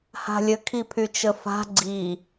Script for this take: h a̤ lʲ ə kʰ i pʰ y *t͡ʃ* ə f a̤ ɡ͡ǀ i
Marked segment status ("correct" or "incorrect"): correct